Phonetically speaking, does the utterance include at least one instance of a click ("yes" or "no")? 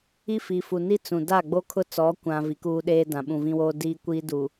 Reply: no